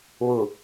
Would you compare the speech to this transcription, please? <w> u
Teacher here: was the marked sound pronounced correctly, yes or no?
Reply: yes